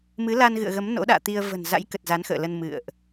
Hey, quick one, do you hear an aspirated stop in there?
no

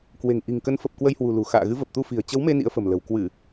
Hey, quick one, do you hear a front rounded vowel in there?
no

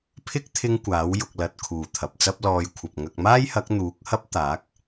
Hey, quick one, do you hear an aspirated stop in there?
yes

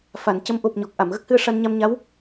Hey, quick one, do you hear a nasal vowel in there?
no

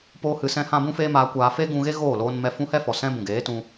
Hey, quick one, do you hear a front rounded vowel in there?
no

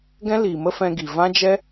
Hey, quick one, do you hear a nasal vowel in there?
yes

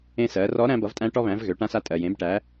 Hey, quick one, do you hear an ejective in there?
yes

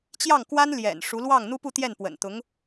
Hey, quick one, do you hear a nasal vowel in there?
no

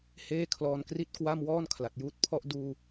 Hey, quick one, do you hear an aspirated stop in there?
yes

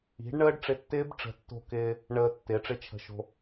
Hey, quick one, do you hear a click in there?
no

